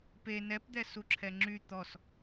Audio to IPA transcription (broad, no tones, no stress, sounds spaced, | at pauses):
p e n ɛ p d̪ ɛ s u ǁʰ ɛ ŋ͡ǁ y t̪ ɔ s